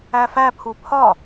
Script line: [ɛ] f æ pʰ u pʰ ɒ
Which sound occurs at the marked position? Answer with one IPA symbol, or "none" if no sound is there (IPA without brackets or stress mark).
æ